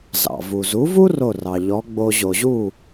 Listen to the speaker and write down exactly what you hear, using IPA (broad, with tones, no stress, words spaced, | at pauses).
zɑ̰˩vu˩zu˩˥vu˥ ro˥˩rɑ˩ ʎɔ˩˥ɡ͡bo˧ ʑo˩ʑu˥˩